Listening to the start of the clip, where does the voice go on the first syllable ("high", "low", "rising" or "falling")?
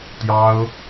high